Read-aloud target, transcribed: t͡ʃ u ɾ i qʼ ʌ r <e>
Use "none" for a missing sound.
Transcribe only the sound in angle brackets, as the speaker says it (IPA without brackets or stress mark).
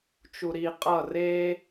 e